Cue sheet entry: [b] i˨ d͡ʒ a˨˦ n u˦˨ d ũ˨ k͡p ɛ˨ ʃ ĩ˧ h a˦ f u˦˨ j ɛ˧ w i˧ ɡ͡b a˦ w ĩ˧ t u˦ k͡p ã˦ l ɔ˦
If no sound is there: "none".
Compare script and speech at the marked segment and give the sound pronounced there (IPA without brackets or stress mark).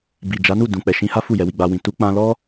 b